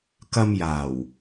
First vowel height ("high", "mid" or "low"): low